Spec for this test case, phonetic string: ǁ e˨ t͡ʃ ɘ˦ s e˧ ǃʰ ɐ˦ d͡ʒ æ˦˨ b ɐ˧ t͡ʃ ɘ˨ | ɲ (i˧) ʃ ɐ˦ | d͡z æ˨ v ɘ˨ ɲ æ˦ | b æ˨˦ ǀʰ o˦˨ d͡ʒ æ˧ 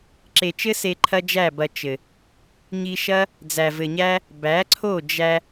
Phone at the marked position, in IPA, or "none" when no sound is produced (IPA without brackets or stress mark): i˧